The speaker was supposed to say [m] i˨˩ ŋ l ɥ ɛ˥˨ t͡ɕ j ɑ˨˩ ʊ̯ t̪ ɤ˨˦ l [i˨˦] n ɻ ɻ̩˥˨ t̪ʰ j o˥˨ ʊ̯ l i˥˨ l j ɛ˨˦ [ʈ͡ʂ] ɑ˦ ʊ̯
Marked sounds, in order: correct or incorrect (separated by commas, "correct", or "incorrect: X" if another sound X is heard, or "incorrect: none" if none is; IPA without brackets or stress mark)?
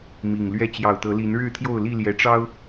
correct, correct, correct